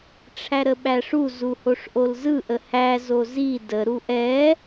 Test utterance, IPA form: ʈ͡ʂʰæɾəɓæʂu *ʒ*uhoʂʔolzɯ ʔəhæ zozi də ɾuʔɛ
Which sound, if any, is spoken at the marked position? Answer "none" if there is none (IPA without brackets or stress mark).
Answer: z